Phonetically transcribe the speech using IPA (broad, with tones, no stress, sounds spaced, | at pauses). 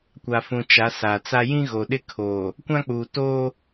kʷ a˨ f ũ˨ t͡ʃ a˨˦ s aː˨ t͡s a˦ j ĩ˦ ɣ o˨ ɗ ɪ˦ kʰ oː˨ | kʷ ã˦ k͡p uː˨ t oː˦